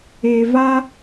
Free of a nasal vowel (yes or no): yes